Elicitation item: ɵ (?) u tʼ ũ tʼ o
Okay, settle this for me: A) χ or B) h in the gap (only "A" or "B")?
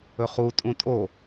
A